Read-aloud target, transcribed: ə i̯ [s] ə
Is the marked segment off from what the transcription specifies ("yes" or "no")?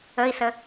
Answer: no